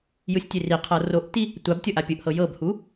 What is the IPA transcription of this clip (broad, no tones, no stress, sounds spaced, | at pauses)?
j ɯ sʲ tʲ e r i qʰ ɤ r o ʔ t i | tʷ a b tʲ ɤ ʔ a pʲ ɯ ʔ h ɤ j ɤ b h u